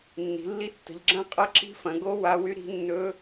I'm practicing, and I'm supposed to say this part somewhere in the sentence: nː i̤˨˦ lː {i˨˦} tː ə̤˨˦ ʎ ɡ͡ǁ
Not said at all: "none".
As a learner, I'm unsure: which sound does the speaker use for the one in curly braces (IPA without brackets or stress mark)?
i˦˥